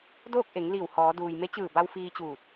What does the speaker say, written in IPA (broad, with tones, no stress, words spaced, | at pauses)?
doː˥˨k̚ʔe˩˧ŋ liː˧˩whɔː˩˧ duː˩j me˧˥t͡ɕɯː˧˩ba˧w fiː˧t͡ɕuː˧˩t̚